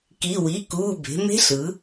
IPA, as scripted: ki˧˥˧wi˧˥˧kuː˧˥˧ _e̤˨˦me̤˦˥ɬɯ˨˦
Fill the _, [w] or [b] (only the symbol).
b